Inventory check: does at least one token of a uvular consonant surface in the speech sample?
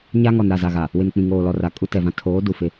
no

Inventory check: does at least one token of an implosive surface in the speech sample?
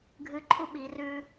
yes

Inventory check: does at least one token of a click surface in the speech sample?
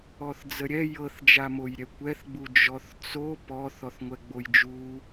no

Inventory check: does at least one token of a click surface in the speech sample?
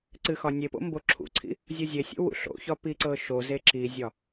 yes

